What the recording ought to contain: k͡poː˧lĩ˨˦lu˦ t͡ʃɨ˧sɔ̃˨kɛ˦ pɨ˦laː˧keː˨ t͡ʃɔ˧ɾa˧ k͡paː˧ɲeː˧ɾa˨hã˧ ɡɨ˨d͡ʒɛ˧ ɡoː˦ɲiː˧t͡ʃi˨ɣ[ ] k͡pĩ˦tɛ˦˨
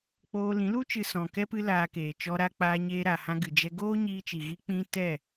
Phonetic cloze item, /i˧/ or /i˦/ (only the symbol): i˧